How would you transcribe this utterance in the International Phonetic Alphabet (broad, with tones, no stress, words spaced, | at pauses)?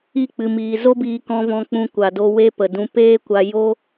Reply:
i˦˨k͡pɨ˨miː˨ zo˦biː˧kɔ̃˧vɔ̃˧ k͡pũ˧ kʷa˨do˧ we˦pə˨dũ˧ peː˦kʷa˧ jo˦